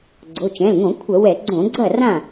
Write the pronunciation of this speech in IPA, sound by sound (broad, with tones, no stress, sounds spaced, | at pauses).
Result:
ɡ͡ǀ o˩˧˩ t͡ʃ ɛ̃˩˧˩ l ŋ õ˧˩˧ kʷʰ ɐ˧˩˧ w ɛ˧˩˧ ɡ͡ǀ õ˧˩˧ ɡ͡ǀ ɐ˥˩ r ã˥˩